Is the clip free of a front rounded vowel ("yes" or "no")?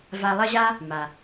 yes